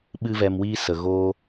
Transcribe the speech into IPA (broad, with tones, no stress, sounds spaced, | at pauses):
ɓ ɨ˦ v ɛ˧ m w iː˦ s ə˨ ɣ oː˦